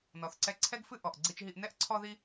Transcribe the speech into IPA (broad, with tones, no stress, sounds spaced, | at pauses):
n ɔ˩ θ ǀ ɛ˧ ǀʰ ɛ˥ ɡ f ɨ˥ ʔ ɔ˩ ʔ ɡ͡ǀ i˧ t͡ʃ ɦ i˧ ʔ n ɛ˥ ʔ ǀʰ ɔ˥ ð i˥